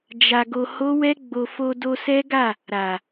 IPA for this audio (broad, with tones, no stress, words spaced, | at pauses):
d͡ʒa˧ɡo˧ ho˦wɛ˦ɡ͡bo˧ fo˧do˧sɛ˦ɡa˦˨ | ɾa˨